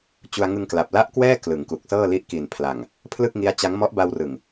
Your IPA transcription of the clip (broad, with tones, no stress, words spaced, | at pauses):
t͡ɕu˧a̯ŋɯ˧ŋkla˨˩p̚ la˥˩ʔkwɛː˥˩ klɯ˩˦ŋku˨˩k̚sɤː˥˩ li˦˥ʔki˨˩npʰla˨˩ŋ | pʰlɯ˥˩k̚ŋi˦˥a̯t͡ɕa˦˥ŋ mɔ˦˥ʔba˧wrɯ˨˩ŋ